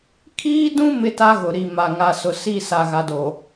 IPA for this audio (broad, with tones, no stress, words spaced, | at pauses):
kʰiː˦dũ˦ mɪ˦ta˦ɣʊ˨ ɾi˨ ma˨ ŋa˨sʊ˨si˦˨ sa˨ɣa˨do˨